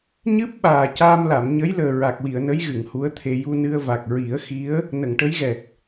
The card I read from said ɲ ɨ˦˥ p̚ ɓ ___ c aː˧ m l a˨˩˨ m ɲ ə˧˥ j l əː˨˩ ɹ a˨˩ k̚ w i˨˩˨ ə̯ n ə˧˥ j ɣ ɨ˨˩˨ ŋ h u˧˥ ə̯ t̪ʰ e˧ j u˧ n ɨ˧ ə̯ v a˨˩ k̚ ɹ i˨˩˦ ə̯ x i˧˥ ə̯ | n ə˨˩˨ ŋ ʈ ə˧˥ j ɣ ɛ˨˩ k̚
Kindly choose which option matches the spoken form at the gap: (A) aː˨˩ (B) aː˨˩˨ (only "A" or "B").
A